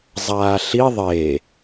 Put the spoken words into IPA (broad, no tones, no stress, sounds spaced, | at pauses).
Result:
zˤ aː ɬ i ðˤ e